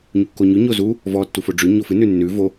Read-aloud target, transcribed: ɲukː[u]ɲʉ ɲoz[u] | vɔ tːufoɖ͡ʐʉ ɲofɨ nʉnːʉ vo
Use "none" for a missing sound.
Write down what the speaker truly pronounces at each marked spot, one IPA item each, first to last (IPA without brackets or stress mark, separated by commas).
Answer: o, u